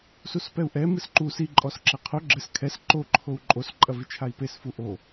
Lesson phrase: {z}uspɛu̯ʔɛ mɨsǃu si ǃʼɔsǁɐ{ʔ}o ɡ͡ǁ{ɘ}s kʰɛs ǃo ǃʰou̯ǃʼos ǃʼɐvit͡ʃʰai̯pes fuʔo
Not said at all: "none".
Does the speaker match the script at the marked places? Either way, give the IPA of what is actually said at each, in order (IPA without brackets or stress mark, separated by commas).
s, qʰ, ɘ